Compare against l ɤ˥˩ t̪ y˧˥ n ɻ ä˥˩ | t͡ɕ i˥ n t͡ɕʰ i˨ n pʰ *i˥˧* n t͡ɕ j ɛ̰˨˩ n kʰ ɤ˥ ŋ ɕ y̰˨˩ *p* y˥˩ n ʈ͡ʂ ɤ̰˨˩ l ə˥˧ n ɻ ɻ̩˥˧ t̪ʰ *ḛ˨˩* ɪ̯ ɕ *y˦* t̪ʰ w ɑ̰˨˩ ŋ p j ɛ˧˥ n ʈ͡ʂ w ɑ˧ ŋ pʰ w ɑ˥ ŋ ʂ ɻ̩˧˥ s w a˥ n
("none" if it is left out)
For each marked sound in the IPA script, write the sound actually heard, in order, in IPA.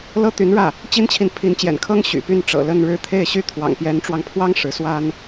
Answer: i˧˥, p, e˥˩, y˥

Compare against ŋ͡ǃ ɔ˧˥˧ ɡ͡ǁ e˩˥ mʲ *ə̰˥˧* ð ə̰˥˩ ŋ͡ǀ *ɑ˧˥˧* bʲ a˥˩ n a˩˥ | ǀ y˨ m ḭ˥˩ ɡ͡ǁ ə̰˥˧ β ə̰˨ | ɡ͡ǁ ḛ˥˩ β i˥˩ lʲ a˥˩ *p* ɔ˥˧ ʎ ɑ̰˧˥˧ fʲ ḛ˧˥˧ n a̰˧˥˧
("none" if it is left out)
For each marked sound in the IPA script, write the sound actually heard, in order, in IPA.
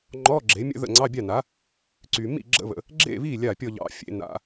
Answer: ə̰˥˧, ɑ˧˥˧, pʲ

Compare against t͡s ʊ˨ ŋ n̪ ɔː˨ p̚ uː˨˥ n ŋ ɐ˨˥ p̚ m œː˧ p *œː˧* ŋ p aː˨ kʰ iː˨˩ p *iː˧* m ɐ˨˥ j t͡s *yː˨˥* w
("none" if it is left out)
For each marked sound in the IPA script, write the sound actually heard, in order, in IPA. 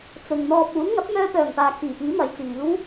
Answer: œː˨˩, iː˨˥, iː˨˥

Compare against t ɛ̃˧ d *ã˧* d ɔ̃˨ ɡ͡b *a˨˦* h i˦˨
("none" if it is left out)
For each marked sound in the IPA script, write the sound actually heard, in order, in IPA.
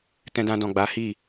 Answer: ã˧, a˨˦

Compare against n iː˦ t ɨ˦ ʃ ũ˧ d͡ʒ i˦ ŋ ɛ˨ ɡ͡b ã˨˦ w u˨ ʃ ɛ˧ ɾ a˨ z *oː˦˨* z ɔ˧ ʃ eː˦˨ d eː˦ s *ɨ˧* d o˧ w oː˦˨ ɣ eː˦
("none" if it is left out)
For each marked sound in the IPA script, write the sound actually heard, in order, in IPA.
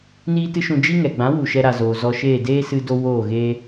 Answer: oː˨, ɨ˧

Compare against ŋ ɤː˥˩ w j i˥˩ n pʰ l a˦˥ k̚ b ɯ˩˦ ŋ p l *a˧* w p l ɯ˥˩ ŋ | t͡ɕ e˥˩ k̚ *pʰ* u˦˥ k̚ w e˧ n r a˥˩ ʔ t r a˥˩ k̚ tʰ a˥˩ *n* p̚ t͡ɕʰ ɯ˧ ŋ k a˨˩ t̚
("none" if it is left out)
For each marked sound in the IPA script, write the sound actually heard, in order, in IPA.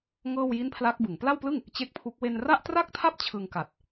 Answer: a˥˩, pʰ, none

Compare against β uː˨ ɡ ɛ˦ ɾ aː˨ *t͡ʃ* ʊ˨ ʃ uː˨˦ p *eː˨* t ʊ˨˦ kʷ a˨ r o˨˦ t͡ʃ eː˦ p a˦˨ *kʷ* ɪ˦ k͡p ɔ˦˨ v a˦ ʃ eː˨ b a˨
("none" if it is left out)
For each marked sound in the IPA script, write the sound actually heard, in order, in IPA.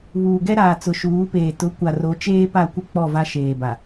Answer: t͡s, eː˨, kʷ

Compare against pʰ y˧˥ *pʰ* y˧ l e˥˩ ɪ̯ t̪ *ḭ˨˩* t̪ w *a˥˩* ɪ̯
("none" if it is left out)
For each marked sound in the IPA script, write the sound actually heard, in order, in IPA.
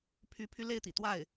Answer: pʰ, ḭ˨˩, a˥˩

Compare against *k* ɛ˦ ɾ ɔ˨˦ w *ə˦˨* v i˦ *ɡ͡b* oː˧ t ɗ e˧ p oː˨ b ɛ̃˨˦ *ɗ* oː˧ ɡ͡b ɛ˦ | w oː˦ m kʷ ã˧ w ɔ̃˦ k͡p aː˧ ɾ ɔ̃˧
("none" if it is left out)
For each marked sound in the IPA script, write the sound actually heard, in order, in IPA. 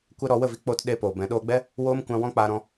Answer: kʷ, ə˦˨, k͡p, ɗ

